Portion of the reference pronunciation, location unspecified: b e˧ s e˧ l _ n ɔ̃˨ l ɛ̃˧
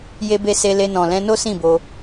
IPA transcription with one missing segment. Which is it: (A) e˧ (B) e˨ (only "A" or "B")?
A